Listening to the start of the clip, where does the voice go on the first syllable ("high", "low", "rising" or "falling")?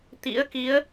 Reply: rising